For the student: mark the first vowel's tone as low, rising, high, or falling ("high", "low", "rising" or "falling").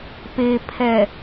low